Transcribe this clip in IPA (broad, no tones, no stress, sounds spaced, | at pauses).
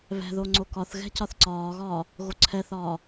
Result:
β ɛ̤ ð o ŋ͡ǀ o k ɒ θ ɣ ɛ̤ c ɒ θ ǀ ɒː ɣ ɒː | ɣ o ǀʰ ɛ θ ɒː